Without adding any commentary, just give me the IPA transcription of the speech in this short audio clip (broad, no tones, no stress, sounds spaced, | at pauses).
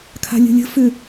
kʰ a̤ lʲ ə̤ lʲ ə̤ f ʏ